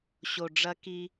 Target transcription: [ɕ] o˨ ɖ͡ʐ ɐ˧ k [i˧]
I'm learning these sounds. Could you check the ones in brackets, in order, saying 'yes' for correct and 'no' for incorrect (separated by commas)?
yes, yes